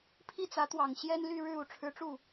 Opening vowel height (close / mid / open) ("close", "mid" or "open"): close